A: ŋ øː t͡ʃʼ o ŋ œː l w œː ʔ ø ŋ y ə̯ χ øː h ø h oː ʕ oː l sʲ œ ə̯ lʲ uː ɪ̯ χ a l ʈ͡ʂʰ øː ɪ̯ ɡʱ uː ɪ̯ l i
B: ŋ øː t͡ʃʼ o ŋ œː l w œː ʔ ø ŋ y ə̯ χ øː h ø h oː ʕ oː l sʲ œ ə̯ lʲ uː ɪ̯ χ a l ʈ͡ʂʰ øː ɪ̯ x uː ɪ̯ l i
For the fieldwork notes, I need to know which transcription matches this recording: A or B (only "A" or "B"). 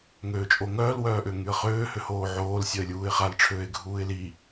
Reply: A